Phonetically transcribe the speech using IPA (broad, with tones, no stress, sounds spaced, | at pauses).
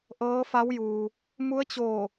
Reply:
ʔ ɤː˧˥ f a˧˥ w j uː˩ | m u˧˥ ə̯ t͡ɕ oː˧˩